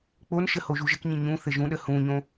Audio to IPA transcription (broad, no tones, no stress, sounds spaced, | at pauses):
k͡p o n ʃ ə h o ʒ u ʒ ɘ k ɲ ĩ ɲ ũ θ ɘ ʒ ũ ɗ ə h ũ ɲ õ